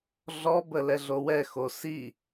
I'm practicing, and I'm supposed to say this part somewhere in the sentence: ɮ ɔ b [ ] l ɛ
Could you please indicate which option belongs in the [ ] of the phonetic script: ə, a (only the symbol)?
ə